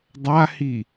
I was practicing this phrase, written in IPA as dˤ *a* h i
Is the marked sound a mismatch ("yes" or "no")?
no